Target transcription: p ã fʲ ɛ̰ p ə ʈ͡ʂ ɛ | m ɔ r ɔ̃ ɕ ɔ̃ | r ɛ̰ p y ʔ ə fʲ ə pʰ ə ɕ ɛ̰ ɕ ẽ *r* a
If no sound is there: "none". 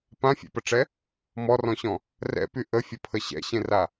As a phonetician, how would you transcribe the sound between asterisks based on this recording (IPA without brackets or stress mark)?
r